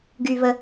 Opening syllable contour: low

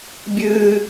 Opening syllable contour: high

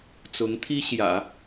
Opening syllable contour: rising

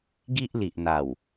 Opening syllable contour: high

